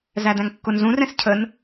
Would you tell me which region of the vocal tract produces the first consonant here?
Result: tongue tip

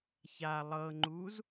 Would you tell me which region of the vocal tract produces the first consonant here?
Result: palate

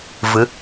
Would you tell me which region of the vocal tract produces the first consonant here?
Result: lips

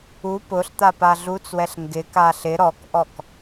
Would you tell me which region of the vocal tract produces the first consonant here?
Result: lips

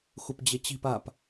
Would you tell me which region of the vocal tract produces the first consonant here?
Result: velum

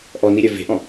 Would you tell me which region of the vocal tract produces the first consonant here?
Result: throat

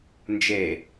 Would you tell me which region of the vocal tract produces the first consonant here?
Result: tongue tip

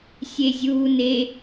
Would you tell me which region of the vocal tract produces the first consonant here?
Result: tongue tip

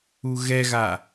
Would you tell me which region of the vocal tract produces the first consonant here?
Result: velum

